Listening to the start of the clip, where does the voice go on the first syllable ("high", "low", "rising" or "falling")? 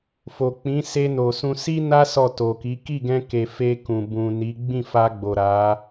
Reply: low